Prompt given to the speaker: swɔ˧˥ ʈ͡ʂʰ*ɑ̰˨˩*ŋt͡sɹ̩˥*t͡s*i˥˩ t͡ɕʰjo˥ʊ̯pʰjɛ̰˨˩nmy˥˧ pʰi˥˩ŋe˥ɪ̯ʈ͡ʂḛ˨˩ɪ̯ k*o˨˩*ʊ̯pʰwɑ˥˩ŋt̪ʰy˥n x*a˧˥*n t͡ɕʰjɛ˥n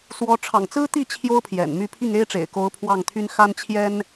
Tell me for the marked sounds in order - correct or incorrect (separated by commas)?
correct, incorrect, incorrect, incorrect